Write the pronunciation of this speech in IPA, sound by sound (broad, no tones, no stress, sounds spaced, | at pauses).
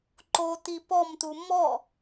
ǃ o t̪ i p ɔ m t̪ u m ɔ